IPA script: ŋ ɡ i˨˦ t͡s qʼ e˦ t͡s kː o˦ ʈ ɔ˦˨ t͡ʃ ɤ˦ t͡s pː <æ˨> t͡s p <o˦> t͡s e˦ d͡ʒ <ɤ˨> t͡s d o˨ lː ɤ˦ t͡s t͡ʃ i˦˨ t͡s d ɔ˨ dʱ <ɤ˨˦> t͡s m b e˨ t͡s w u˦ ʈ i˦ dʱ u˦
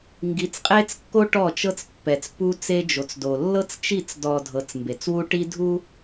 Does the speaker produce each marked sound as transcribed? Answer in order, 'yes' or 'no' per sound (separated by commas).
no, no, no, yes